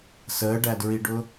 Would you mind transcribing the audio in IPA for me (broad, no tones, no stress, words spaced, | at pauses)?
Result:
səːɖædɹiɖʊ